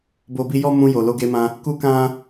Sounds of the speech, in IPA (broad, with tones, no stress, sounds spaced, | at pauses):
b o˧ b i˧ j ɔ˦ m ũ˧ j o˨ l o˧ ɡ e˧ m ã˧ | k u˦ k ã˦